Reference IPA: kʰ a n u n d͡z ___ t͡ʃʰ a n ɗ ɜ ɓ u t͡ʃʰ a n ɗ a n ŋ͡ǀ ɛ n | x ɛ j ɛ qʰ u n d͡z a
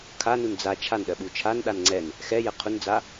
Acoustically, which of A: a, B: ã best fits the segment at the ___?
A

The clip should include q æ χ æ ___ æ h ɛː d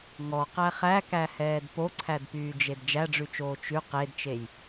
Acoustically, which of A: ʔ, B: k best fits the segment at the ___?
B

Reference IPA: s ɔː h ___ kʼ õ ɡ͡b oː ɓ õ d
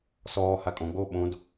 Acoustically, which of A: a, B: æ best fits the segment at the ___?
A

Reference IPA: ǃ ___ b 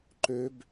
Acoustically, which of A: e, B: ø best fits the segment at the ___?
B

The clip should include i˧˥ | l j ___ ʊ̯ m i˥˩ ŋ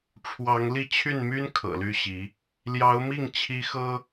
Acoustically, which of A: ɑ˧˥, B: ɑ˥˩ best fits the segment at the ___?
A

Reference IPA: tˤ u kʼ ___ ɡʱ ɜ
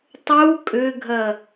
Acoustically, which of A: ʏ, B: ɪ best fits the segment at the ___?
A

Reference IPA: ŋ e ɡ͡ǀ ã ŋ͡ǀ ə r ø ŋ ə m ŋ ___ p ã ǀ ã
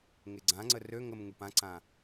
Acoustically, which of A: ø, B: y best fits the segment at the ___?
B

